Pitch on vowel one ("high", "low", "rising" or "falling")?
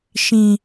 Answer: low